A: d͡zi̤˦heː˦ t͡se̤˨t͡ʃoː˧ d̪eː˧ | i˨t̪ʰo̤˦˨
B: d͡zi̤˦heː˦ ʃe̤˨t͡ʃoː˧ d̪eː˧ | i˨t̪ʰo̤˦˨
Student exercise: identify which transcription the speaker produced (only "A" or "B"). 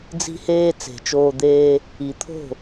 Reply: A